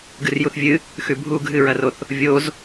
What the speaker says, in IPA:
ɡɨrjuθvʲɨ | xʉbʱu ɡʱɨɹɐroθ | vʲoz

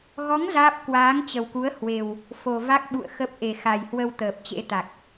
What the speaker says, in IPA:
ɣɔ˨˦ŋ zaː˦˥p̚ kwaː˨˦ŋt͡ɕə˨˩wku˨˦ə̯ hwe˨˩w | fo˨˩va˦˥k̚ɓṵ˧˨ə̯ xə˦˥p̚ ʔe˨˩xa˨˩jhwə˧w t̪əː˨˩p̚t͡ɕḛ˧˥ t̪a˨˩k̚

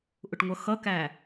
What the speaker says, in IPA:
ʔʊʈŋʷʌxʌkæ

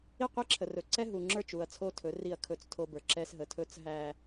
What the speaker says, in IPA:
i˦˨qʷi˦ǁʰə˨rɵ˨ ǀɛ˦ɦu˨ŋ͡ǁə˞˦˨t͡ʃu˨ɐ̯ t͡sʰo˦tʰɵ˨˦ri˦˨ɐ̯ kʰɵ˦t͡stʰo˦bə˞˨ ǁɛ˦sɦə˨tʰɵ˦t͡s ɦæ˨

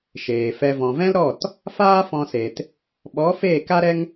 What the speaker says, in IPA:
ʃeː˨ fɛ˧ vɔ̃˨vɛ̃˦lɾɔ˦˨t | faː˦fɔ̃˧se˨t | ɓɔ˨˦ feː˦˨ka˦ɾɛ˦ŋ

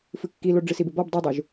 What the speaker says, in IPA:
fɨkːilo ɖ͡ʐɨsibɪbɔb dˤodˤuʒ

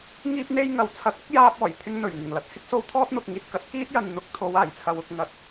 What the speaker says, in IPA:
ŋiː˧p̚n̪e˧j ŋɐ˨˩wt͡sʰɐ˨˥k̚ɐ˥k̚jaː˧p̚ ɔː˨˩jt̪ʰɪ˧ŋ n̪ɵ˨˩ɥŋɪ˨˩ŋ lɐ˨t̚ hɪ˥k̚so˧w t̪ʰɔː˥t̚n̪ʊ˨k̚ŋiː˨t̚ kɐ˨˥t̚kiː˥t̚ jɐ˨nn̪ʊ˨˥k̚t̪ʰo˨˧w aː˨˩jt͡sʰɐ˨˧wʊ˨k̚ ŋɐ˨˥t̚

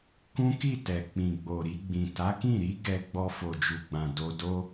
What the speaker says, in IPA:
kũ˦ki˦˨tɛ˨ k͡pĩ˨ɡ͡bo˨ɾi˧ɡ͡bĩ˨ ta˨˦kĩ˦˨ɾi˨˦ ɡɛ˧ ɡ͡bɔ˧fo˨d͡ʒu˨ɡ͡bã˨ do˧do˦

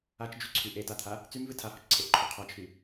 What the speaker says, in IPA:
at͡ʃd͡ʒyǀʰy ʔetat̪ʰa | t͡symvɨ tʰahɔt͡ʃǀʰeʔǃʰu qʰat͡ʃʰy

